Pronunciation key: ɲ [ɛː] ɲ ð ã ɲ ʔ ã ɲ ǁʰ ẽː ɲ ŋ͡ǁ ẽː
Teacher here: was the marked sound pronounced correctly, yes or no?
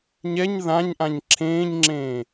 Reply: no